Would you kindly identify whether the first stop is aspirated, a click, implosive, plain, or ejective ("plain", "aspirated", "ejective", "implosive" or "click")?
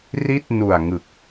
plain